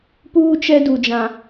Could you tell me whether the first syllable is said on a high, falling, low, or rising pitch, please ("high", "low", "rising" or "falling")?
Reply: high